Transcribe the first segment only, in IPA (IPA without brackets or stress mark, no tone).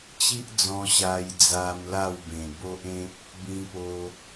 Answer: t͡ɕ